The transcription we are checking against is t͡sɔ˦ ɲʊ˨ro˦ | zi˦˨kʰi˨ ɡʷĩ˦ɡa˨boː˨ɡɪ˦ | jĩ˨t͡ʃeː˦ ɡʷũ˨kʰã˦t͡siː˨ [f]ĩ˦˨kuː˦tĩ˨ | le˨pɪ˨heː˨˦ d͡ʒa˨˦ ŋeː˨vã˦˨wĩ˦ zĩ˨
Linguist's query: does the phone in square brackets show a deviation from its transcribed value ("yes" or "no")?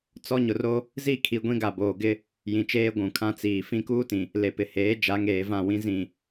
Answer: no